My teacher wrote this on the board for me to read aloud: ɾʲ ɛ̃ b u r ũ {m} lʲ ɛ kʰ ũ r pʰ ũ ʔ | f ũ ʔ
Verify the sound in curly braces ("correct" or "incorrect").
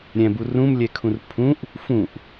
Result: correct